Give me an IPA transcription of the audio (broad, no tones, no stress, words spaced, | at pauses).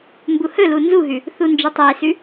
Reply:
mbuhɵlu nzuɦʉ | θund͡ʒɨtˤesʉ